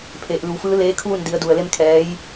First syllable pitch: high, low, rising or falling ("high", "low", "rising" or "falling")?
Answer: low